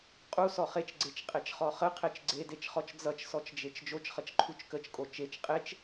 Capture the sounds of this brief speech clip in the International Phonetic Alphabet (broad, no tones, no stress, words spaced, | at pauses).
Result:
qʼusɔ χet͡ʃɡ͡ǀet͡ʃqʼet͡ʃχɔ χəqʰet͡ʃ ɡ͡ǀedet͡ʃχɔt͡ʃ d͡zʌt͡ʃsɔt͡ʃd͡ʒet͡ʃ d͡ʒot͡ʃχʌt͡ʃǃʰut͡ʃ kət͡ʃkʼo t͡ʃet͡ʃ qʼet͡ʃ